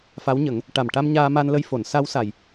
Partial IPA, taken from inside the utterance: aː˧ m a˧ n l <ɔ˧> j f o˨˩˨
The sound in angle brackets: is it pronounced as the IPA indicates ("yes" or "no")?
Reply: no